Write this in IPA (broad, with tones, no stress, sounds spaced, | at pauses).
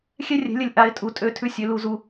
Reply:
xʲ ɛ˦ rʲ ɛ̤˨˦ lʲ ə˨ lʲ ʔ a˨˦ ɪ̯ tʼ u˨ tʼ ø˦˨ tʰ ʉ˦ sʲ ø˨ l u˨ z u˨